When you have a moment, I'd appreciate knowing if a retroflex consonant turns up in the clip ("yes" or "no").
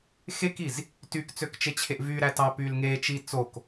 no